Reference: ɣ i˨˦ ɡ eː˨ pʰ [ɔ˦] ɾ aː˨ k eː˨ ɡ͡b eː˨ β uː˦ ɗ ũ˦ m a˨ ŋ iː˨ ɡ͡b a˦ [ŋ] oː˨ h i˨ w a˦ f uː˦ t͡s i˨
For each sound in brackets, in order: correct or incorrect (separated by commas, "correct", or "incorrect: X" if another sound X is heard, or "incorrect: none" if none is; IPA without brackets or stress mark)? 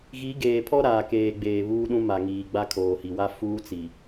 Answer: correct, incorrect: kʰ